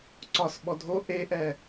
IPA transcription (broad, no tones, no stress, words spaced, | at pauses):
ǀɒsɓɔ dʱo ʔeʔɛ